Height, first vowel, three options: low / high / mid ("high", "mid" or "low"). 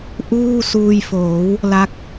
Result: high